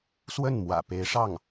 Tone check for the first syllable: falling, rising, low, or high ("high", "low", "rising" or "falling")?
falling